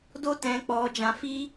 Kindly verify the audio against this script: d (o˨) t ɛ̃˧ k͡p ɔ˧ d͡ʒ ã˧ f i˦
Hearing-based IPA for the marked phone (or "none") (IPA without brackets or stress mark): o˦